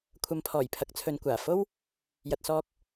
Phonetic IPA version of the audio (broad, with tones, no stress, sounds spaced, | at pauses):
kʷʰ ɐ˨˧ m pʰ ɔː˨˩ j pʰ ɐ˨˥ k̚ t͡sʰ ɵ˨ n kʷ aː˨˩ f o˥ w | j ɐ˨ t̚ s ɔː˧ k̚